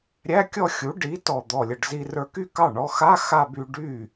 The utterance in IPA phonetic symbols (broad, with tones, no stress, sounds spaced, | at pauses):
ɾʲ æ˧˥˧ kʲ ɔ˥˧ xʲ u˩˥ ɖ i˩˥ t ɔ˨˩ d̪ ɔ˨˩ lʲ ə˨˩ ɖ z i˧ r ə˞˧ k y˥˧ k ɑ˥˩ ɳ ɔ˧ x a˧˥˧ x a˥˧ b y˧ ɖ y˥˩